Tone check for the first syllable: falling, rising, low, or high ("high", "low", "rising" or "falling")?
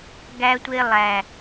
high